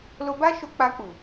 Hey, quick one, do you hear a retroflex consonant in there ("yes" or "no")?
no